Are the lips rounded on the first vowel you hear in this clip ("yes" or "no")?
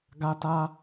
no